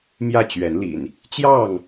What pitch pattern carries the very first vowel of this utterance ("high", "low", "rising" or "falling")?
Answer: falling